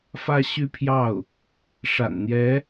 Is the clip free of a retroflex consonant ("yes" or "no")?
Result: no